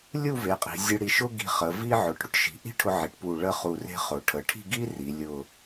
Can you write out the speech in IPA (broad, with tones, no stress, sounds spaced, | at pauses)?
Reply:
lʲ u˥˧ v e˩˧ qʼ i̤˩˧ zʲ ə˧ ɽ i˧˩ ʃ ʊ˥ ɡ i̤˧ χ ə˩˧ v i˥ ʕ ʊ˩˧ ʈ ɽ ʊ˥ ʈ ʃ i̤˩˧ ʔ i̤˥ ʈʰ ʊ˧ ʕ i˩˧ ʈ p u˧˩ ɭ ə˥˧ χ u˧˩ r e̤˥ χ ʊ˩˧ ʈʰ ə˩˧ ʈʰ i̤˥˧ ɡ i˥ r i˩˧ lʲ ʊ˧˩